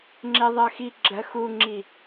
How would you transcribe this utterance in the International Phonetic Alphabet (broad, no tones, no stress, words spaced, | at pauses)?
ŋ͡ǁeðˤɜxi ɡ͡ǁɜxuŋ͡ǁi